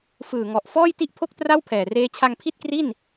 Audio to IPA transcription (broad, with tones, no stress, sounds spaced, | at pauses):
f ɯː˨˩ ŋ ɔ˨˩ ʔ f ɔː˥˩ j t i˥˩ ʔ pʰ o˥˩ k̚ t r a˥˩ w pʰ ɛː˨˩ r eː˦˥ t͡ɕʰ a˧ ŋ pʰ i˥˩ t̚ k r i˥˩ n